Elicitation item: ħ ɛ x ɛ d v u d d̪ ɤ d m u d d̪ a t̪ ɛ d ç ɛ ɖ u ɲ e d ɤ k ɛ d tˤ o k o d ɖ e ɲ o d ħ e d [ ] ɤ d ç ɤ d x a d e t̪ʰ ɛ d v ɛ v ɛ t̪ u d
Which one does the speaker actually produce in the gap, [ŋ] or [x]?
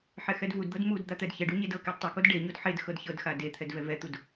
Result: x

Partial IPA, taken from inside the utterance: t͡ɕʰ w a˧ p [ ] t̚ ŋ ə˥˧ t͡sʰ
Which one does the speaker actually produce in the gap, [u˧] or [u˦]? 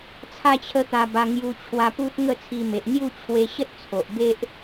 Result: u˦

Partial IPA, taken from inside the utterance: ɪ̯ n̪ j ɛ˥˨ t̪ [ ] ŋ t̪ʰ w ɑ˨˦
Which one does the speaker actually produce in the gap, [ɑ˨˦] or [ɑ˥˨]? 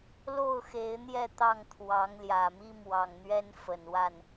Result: ɑ˥˨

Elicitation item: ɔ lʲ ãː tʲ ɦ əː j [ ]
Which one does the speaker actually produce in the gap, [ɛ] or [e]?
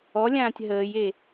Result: e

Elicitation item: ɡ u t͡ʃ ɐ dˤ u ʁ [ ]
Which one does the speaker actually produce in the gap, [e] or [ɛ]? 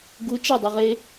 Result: e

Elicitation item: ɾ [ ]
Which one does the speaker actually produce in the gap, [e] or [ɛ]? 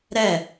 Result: ɛ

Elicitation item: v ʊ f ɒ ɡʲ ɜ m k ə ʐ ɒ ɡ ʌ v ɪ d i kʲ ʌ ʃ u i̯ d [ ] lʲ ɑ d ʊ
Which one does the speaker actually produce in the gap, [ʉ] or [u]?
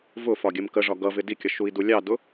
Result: u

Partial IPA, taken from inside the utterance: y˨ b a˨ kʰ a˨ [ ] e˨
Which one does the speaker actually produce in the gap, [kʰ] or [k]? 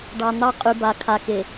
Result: k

